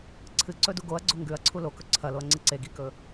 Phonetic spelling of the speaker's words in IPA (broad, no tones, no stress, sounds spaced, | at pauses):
ǀʰ ɨ ǀ ɵ d u ɡ o ɐ̯ ɡ͡ǀ o ŋ ɡ ʉ ɐ̯ ǀʰ u l o k ɵ ǀʰ ɐ l o ɐ̯ ŋ͡ǀ ɨ ǀ e ɡ i k ɵ